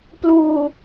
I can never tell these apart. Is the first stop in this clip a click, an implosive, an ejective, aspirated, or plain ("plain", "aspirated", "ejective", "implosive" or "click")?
plain